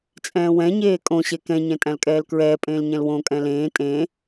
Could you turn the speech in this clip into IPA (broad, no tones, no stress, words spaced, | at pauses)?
t͡sʼɛ̃ːwɛ̃ɲeː kʼõ ɕekɛ̃ɲɛ̃ tʼæ̃lkʼɛːlkɹɛːpʼẽːl ɲɛ̃lwõkʼɛ̃ lẽː tʼẽ